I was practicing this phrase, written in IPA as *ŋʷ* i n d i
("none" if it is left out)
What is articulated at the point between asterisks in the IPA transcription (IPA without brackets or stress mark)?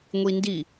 ŋʷ